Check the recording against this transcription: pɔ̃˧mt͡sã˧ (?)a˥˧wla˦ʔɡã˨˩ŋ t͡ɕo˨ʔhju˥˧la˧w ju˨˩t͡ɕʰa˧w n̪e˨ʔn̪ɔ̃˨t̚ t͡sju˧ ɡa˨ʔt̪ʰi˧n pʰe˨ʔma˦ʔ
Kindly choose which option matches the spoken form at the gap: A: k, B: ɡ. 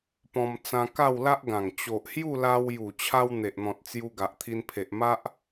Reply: A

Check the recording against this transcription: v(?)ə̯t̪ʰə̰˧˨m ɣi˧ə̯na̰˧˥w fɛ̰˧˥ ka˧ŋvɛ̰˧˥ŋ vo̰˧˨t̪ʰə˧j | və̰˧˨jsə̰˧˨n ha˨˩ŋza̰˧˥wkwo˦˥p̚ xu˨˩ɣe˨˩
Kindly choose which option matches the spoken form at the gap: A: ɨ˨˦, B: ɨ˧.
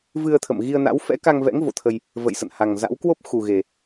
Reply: B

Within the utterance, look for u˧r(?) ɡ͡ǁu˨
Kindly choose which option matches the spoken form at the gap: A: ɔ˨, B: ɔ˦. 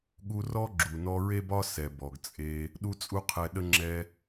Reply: B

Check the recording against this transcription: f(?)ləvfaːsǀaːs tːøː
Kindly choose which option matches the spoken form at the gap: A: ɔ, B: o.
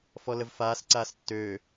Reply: A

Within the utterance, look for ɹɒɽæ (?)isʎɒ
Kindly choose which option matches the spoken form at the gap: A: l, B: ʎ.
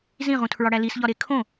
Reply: A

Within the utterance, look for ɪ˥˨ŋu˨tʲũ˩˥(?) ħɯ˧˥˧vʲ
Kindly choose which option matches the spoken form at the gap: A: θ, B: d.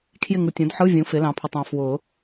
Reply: B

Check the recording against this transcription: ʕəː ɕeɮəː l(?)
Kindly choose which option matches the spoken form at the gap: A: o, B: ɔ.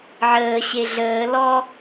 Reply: B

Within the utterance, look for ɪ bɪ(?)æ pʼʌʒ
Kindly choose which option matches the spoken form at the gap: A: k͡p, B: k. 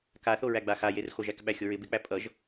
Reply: A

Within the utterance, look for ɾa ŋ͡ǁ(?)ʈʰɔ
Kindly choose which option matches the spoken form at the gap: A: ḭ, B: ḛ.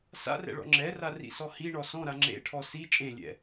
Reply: B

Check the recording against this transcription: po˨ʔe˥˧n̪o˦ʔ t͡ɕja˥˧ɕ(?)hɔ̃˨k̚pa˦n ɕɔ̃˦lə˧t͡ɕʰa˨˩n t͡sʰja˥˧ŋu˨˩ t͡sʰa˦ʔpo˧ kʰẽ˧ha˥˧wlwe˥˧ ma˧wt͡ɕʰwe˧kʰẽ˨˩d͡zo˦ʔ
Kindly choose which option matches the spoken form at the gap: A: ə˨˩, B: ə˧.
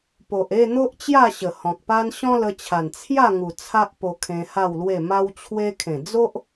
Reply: A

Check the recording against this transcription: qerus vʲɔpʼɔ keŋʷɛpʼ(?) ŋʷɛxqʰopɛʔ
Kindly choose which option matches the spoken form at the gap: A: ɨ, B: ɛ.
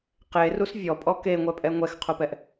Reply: B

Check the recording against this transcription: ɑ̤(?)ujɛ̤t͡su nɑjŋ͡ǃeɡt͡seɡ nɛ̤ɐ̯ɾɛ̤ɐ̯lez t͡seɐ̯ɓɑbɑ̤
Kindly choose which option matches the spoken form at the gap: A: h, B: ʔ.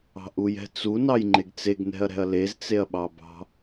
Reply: B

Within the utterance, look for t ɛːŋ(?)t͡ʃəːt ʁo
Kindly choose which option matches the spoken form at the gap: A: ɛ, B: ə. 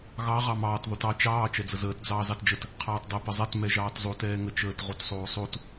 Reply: B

